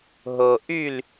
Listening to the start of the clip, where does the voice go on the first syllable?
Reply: low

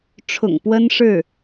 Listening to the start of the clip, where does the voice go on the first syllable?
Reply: low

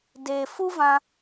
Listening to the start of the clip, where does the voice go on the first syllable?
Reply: low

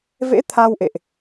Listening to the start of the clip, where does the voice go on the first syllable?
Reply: rising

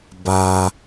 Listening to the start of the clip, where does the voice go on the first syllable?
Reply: low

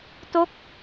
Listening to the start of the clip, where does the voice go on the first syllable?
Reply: falling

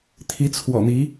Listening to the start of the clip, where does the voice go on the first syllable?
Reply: rising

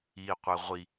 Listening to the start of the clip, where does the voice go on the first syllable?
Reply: low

